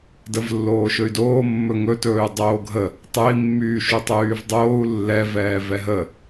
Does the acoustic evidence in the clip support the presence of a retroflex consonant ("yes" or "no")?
no